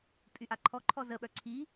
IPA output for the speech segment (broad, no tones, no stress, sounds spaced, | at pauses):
pʼ y ʔ a ǃʰ ɔ ǃʰ ɔ z ə ɓ œ ǀʰ i